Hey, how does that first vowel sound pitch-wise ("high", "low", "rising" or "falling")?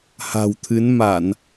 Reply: low